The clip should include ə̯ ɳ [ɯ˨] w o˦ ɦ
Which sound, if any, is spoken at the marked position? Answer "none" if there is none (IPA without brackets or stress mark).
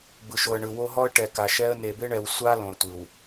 ɯ˨